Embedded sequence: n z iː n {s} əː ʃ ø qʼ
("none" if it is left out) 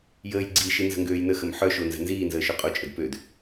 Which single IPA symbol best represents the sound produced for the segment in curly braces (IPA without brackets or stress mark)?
z